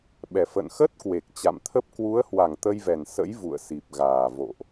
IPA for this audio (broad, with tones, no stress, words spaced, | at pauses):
ɓɛ˨˩ fə̰˧˨nxə˦˥t̚kwe˨˩k̚ t͡ɕa̰˧˨mt̪ʰə˦˥p̚ kwu˨˦ə̯hwa˧˩ŋ t̪ə˧jvɛ˨˩nsə̰˧˥j vṵ˧˨ə̯si˨˩p̚ɣaː˨˩ vo̰˧˨ʔ